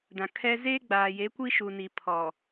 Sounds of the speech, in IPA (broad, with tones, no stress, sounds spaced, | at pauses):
d ã˨ kʰ ɛ˦ z eː˦ ɡ͡b aː˨ j e˨˦ kʷ i˦ ʃ u˨ n i˨ pʰ ɔ˨